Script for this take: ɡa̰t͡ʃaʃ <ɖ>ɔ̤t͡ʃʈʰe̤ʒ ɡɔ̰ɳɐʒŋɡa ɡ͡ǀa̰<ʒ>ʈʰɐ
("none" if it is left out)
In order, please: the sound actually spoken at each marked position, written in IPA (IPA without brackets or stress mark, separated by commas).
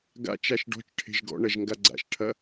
ɖ, ʃ